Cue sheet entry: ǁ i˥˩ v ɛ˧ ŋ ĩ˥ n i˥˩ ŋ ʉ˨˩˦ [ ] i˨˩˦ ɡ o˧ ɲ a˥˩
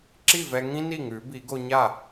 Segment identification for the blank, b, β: b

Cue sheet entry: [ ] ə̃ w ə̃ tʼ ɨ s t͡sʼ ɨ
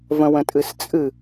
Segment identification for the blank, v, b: v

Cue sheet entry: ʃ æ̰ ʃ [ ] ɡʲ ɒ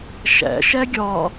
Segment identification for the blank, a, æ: æ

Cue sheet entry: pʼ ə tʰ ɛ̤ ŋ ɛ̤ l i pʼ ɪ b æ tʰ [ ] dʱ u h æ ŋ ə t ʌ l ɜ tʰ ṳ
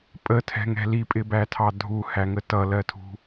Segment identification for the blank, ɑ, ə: ɑ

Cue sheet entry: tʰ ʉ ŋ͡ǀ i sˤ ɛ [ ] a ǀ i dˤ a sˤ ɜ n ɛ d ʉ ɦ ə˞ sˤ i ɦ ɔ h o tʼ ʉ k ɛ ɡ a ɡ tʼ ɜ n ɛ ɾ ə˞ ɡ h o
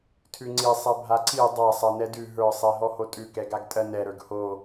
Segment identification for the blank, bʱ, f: bʱ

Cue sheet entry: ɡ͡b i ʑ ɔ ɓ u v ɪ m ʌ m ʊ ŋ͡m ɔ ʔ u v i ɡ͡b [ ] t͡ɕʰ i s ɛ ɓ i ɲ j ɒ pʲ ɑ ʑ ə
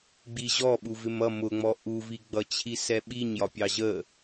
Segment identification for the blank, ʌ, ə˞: ʌ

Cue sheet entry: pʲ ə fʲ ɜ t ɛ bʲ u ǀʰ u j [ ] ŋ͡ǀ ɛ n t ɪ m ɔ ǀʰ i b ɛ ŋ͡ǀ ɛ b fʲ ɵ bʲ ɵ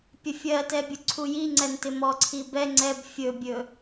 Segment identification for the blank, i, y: i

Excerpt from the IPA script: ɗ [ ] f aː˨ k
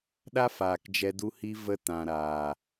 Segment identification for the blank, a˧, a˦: a˦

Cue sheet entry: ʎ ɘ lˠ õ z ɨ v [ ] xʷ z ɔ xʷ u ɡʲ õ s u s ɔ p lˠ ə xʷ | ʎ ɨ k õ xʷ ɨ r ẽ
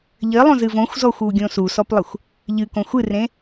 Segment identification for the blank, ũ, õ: õ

